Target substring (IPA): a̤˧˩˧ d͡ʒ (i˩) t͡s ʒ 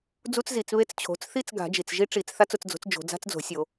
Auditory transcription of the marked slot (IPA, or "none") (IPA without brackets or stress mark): i˩